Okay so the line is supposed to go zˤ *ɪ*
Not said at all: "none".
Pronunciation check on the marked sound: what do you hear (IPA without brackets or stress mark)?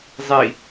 i